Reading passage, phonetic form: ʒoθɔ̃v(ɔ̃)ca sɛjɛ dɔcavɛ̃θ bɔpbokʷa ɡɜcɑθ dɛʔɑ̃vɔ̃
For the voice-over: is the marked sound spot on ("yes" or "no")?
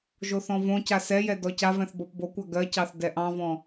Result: no